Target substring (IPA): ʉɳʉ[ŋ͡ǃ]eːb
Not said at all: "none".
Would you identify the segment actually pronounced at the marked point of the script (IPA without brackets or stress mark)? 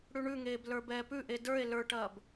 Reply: ŋ